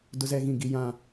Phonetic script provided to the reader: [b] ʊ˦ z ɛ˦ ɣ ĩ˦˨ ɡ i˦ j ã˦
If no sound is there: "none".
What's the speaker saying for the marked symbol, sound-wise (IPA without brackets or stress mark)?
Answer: d